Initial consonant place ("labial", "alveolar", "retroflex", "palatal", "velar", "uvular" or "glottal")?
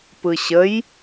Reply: labial